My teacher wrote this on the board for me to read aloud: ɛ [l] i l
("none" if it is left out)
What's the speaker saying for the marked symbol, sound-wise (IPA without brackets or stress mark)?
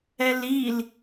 l